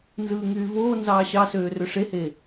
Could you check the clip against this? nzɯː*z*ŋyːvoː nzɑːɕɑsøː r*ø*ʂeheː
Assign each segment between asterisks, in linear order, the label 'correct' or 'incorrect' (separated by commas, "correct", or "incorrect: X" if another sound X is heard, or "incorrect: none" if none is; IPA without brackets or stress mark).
incorrect: none, correct